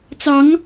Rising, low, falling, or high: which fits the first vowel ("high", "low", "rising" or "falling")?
rising